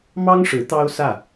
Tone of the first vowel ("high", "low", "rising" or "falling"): high